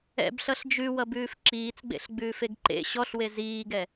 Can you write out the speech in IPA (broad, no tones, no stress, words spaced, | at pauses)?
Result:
ɛ̰bɬʌɬ d͡ʒʉwʌbʉːf ǁiːt͡sɡ͡bḛɬɡ͡bʉːfeɡ ǃḛ ɕɔɬwe ziːɡɛ